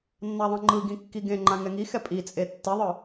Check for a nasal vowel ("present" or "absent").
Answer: present